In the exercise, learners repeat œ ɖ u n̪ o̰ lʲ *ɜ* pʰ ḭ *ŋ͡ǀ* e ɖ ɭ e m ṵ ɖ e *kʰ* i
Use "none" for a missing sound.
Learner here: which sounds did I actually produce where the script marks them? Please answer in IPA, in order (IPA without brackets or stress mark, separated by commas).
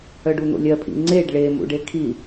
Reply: ɜ, ŋ͡ǀ, kʰ